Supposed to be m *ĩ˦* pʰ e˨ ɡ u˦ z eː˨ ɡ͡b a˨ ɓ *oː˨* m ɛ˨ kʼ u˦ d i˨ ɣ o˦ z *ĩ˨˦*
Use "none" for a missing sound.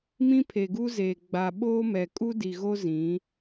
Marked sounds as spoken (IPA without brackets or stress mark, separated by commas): ĩ˦, oː˦, ĩ˨˦